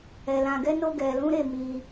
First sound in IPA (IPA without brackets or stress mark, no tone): ɛ